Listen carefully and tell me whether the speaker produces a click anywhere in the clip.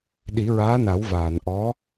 no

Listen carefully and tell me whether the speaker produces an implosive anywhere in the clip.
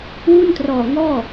no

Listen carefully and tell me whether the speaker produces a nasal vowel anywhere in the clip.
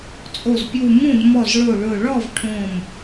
yes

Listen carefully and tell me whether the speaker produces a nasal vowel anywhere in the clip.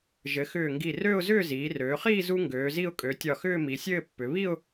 no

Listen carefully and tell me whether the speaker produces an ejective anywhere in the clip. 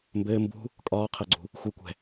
yes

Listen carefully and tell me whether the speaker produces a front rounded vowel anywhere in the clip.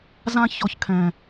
no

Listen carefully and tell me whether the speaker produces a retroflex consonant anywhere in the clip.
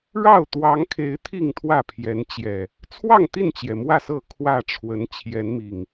yes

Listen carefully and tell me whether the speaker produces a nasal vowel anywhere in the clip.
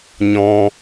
yes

